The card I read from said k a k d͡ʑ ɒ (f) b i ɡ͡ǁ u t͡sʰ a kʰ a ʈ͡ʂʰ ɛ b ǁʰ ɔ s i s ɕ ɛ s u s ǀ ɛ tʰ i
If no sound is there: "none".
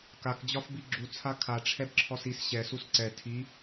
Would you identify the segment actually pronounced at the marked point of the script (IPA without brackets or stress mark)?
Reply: f